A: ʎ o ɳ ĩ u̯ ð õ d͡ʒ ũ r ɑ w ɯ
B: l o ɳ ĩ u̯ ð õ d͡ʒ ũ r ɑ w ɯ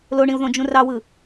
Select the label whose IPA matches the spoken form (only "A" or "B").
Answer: B